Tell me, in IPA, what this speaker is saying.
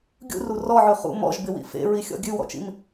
ɡʲṵru rɔʕʉ χṵ mɔ̰ʒbɪwḭ fḛɹixʲɔ̰ ɡʲʉwɔ̰t͡ʃḭm

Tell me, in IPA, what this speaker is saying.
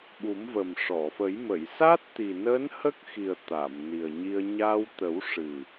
ɓu˨˩˦mvə˨˩m ʂɔ˨˩˨fə˨˩˦j mə˨˩˨j sa˦˥t̚t̪i˨˩nəː˧˥n hə˦˥k̚ xi˨˩ə̯ t̪a˨˩˨mni˨˩ə̯ ɲi˧ə̯ ɲa˧w t̪ə˨˩˦w ʂɨ˨˩

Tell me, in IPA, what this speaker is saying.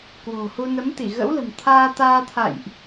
kwo̤˨˩hu˧ nə˨˦mt̪i˧˩ ɣə̰˧˥wlə̤˨˩m t̪ʰaː˧t̪aː˧t̪ʰa̰˧˨jʔ

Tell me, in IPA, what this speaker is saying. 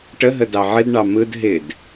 ʈəɦə dɑʕɪdɳɑ mɯd ɦɪd

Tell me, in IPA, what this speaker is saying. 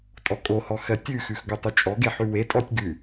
tʼɔkʼohɔ xɜtʲʉxʉx ɡotˤʉt͡ʃʼɔɡe ħʉwetʼɔtʲ ɡʉ

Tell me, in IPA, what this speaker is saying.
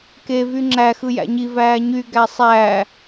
ke vyŋ͡ǁæ xɯjæ̰ɲi væːɲy ɡæsˤæː

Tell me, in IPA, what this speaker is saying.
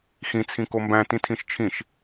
xĩ t͡sʰĩkombæ̃ tĩtʰĩʃt͡ʃʰĩʃ

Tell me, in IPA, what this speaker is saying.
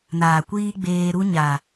naː˨kʷiː˦ɡ͡beː˧ ɾu˦ɲa˨

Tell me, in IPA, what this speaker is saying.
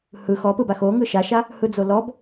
hɯ xɔpɯba xo ŋɯʃaʃa | hɯd͡zolɔb

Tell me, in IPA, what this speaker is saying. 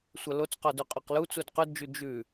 sʷɐlot͡sqɔ dʉqʼɔqlu t͡sudqʉdd͡ʒʉ d͡ʒʉ

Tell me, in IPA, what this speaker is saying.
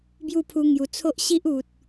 bju˥˧pʰu˧ ŋju˨˩t͡sʰo˦ʔ ɕi˦ʔu˨t̚

